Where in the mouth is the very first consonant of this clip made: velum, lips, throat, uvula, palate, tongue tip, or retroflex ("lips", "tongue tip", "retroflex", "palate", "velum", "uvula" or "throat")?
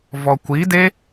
lips